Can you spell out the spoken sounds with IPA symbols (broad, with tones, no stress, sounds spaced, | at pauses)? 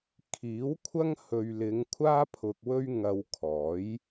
kʰ iː˨˥ w kʷʰ ɐ˥ ŋ h ɵ˨ ɥ l ɪ˨˧ ŋ kʷʰ aː˥ pʰ ʊ˧ k̚ w ɵ˥ ɥ ŋ ɐ˧ w kʰ ɔː˨˥ j